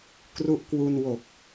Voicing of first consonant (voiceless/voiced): voiceless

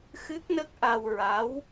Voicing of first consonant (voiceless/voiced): voiceless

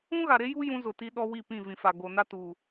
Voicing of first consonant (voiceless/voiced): voiced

